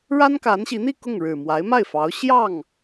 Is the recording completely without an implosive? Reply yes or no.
yes